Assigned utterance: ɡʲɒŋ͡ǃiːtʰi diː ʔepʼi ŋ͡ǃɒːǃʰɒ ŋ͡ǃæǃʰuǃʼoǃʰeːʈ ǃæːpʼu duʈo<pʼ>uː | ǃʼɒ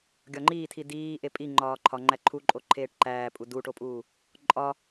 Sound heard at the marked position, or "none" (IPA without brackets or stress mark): pʼ